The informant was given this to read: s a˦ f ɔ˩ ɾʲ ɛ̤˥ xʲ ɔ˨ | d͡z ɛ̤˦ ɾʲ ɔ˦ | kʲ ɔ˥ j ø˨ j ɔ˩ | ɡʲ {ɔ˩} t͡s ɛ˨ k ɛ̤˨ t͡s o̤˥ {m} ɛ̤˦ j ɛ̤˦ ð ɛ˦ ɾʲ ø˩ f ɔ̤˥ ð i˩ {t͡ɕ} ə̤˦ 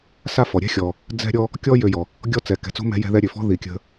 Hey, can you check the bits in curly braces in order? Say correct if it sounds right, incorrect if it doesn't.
incorrect: ɔ˥, correct, incorrect: kʲ

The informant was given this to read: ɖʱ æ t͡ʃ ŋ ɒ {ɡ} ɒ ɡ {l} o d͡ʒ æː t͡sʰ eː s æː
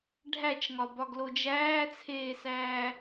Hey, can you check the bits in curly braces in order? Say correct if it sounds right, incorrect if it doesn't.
incorrect: b, correct

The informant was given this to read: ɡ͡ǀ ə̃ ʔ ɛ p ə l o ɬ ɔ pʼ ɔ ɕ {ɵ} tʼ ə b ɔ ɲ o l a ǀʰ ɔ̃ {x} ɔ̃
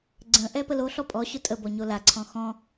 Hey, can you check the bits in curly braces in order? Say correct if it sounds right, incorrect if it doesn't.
incorrect: ʊ, correct

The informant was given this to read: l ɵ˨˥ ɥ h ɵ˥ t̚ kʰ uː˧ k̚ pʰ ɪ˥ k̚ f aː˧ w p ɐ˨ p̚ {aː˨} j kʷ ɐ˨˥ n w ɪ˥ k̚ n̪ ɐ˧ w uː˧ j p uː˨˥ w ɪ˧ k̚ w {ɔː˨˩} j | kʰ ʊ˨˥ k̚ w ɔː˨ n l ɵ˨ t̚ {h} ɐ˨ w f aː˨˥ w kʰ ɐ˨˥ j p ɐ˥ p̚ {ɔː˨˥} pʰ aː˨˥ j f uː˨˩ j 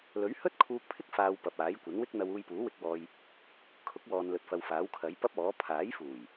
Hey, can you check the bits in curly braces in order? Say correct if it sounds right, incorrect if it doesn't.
incorrect: aː˨˥, incorrect: ɔː˧, incorrect: f, correct

